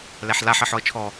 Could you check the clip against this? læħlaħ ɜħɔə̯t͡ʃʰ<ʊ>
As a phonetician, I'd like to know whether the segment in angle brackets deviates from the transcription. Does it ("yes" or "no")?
yes